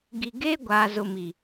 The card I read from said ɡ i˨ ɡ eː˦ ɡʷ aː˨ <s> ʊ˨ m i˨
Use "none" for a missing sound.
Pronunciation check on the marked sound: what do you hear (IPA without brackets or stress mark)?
z